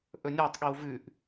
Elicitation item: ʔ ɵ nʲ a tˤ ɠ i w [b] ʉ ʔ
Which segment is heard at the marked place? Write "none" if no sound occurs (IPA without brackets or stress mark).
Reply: v